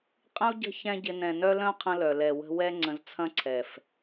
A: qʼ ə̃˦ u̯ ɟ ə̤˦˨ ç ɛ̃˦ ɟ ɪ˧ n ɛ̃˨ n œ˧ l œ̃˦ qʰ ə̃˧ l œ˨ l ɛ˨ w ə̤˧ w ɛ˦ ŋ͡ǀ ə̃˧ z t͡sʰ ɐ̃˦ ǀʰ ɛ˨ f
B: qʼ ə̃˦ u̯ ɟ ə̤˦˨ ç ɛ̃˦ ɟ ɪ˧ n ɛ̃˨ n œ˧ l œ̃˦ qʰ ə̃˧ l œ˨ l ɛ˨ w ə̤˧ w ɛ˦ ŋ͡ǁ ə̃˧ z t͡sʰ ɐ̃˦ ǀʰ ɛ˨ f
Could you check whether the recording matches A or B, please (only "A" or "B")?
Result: A